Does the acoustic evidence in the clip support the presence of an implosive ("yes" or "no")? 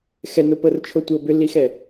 no